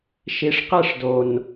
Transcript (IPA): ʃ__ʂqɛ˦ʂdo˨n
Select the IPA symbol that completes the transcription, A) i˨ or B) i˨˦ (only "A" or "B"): A